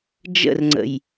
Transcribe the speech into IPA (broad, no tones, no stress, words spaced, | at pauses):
d͡ʒə̰rŋ͡ǀə̰j